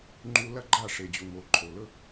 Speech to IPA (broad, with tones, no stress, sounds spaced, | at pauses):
ŋ͡ǃ u˧ l ɐ˦ ɡ͡ǃ a˦˨ ʂ e˨ d͡ʑ u˨ ŋ o˨ ǃʰ o˨ l ɵ˦